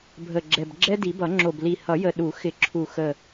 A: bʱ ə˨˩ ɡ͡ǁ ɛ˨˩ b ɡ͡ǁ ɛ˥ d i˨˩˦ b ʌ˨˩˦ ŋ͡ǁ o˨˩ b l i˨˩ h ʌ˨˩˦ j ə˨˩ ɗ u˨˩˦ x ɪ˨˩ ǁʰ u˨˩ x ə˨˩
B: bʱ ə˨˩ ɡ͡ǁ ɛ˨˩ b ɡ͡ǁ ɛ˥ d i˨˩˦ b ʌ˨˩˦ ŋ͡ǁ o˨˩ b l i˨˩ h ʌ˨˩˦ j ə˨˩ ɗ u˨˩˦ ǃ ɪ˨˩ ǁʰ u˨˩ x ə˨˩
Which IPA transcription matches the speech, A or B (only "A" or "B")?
A